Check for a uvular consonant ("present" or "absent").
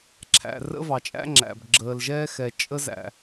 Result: absent